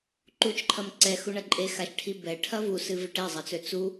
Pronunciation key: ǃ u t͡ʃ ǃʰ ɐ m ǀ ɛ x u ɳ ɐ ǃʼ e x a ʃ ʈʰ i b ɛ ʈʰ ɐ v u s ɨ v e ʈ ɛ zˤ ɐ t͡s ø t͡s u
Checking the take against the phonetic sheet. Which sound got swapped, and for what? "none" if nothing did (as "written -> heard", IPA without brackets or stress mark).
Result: none